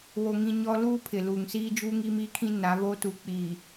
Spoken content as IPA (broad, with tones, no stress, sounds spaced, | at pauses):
w o˦ ŋ ĩ˦ ɲ ɔ˦ l uː˦ pʰ ɪ˨ l uː˨ ŋ s iː˦ d͡ʒ uː˦ ŋ iː˦ m iː˦ kʰ ĩ˦ n a˨˦ β o˦ t u˨ k͡p iː˨